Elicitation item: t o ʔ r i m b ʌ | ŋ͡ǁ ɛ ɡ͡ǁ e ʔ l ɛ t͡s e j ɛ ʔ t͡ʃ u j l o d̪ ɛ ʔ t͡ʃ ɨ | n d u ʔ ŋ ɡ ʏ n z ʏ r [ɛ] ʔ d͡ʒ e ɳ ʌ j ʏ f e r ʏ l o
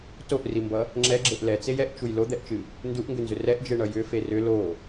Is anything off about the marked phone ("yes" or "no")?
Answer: no